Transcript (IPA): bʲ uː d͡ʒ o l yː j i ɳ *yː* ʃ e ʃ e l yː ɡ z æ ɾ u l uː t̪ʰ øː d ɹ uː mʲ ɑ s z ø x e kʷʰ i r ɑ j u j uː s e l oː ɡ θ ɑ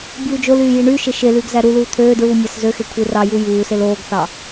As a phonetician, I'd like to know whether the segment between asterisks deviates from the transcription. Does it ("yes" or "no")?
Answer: no